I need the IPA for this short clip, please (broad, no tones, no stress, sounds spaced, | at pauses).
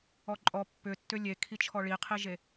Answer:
ɔ ǃʼ ɔ pː ʏ tː ʏ lʲ e kʰ i t͡ʃʰ ɔ ɭ i qʰ i ʒ e